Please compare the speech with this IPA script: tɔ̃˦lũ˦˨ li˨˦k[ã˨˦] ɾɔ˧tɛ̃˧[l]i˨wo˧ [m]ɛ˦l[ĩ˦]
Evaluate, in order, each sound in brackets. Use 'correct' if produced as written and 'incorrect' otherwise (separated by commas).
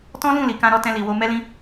incorrect, correct, correct, correct